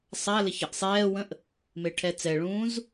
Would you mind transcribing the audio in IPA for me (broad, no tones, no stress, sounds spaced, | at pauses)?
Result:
sˤ a l ɘ ç ə ʔ sˤ ɛː w ə̃ ʔ | m e ʈʰ ɛ t͡s ɛ ɭ ũː z